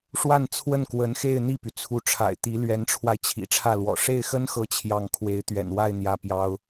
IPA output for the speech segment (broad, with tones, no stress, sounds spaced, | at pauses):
ʂ w a˥˧ n t͡sʰ w ə˥˩ n k w ə˧˥ n x e˥˧ ɪ̯ n̪ i˥˩ p y˩ t͡sʰ u˧˥ ʈ͡ʂʰ a̰˨˩ ɪ̯ t̪ i˧˥ l ɥ ɛ˧˥ n ʈ͡ʂʰ w a˧ ɪ̯ t͡ɕʰ ḭ˨˩ ʈ͡ʂʰ ä˥˩ l w ɔ̰˨˩ ʂ e˥˩ ɪ̯ x ə˥ n x ɤ˧˥ t͡ɕʰ j ɑ˥˩ ŋ kʰ w e˧˥ ɪ̯ t̪ ɥ ɛ̰˨˩ n w a˥˧ ɪ̯ n̪ j ä˥˩ p j ɑ˥ ʊ̯